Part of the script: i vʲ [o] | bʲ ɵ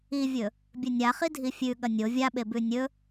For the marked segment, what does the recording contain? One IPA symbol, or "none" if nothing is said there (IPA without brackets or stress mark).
ɵ